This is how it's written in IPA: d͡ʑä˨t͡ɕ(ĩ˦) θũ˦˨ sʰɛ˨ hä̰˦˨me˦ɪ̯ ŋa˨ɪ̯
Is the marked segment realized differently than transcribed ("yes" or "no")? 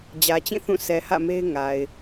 yes